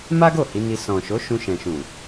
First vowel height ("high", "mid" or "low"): low